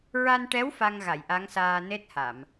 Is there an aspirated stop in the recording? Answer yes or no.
no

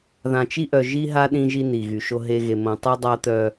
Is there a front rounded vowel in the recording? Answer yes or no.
yes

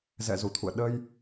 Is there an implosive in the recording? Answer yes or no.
yes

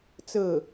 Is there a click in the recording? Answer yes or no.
no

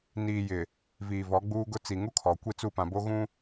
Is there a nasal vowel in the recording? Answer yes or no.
yes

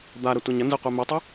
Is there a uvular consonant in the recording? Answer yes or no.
yes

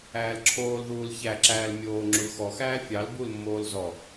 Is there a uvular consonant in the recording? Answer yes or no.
no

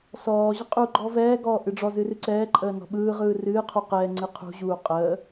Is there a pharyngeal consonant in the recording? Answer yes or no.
no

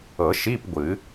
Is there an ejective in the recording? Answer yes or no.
no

